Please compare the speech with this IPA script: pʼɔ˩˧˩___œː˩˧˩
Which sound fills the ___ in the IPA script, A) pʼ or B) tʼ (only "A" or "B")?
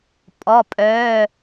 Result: A